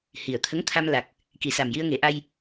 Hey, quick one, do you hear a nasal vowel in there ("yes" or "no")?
no